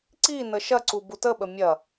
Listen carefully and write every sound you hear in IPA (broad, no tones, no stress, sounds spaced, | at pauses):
ǀ i n ə ʃ ɐ ǀ u b u t ə ɓ ə mʲ ɐ